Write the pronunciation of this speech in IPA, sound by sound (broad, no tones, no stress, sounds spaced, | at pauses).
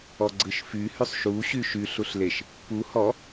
ɔ ɡ͡ǀ ɯ ʃ f y h y sˤ ʃ u ɕ y ʃ y ɬ u ɬ l e ʃ | p u h ɔ